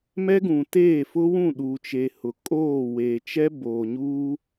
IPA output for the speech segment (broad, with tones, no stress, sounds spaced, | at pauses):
m ɛ˦ ɡ ũ˨ t eː˦˨ f ʊ˦ w ũ˦˨ ɗ uː˨ t͡ʃ e˨ h ʊ˨ kʼ oː˦˨ w eː˨ t͡ʃ ɛ˦ b oː˨ ɲ uː˦